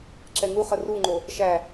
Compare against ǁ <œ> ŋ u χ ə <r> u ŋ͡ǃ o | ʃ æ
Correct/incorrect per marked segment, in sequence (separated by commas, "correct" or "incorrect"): incorrect, correct